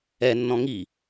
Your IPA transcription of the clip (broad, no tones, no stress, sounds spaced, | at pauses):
ɛ nː ɔ̃ ŋ i